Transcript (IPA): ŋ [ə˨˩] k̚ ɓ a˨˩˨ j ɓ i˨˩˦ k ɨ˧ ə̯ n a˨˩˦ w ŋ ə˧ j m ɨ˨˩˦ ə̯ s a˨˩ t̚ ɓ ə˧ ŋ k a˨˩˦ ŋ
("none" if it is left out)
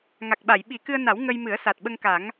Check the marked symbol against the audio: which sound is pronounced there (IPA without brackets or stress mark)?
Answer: a˨˩